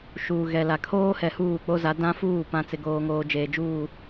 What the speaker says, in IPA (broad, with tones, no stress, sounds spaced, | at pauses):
ʃ uː˨ ɣ ɛ˨ l a˨ kʰ oː˦ h ɛ˨ h uː˦˨ k͡p o˦ z a˨˦ d ã˦ f uː˦˨ p ã˨ t͡s ɪ˨ ɡ oː˨ ŋ oː˨ d͡ʒ eː˨ d͡ʒ uː˦˨